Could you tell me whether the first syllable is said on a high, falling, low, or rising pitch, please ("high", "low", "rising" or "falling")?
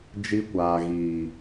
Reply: high